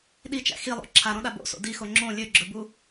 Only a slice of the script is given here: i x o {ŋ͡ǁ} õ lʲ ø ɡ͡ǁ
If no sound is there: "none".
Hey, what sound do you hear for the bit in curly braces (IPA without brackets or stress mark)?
ŋ͡ǁ